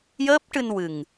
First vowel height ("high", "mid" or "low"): mid